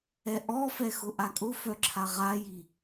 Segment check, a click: present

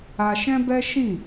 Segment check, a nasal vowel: present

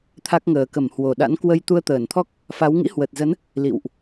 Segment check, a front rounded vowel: absent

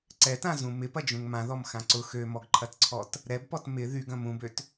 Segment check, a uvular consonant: absent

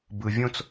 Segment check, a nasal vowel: present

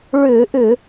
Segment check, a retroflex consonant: present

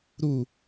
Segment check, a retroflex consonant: absent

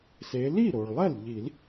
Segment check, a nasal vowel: absent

